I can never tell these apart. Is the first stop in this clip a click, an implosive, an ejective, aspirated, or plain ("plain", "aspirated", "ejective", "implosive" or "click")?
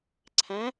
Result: click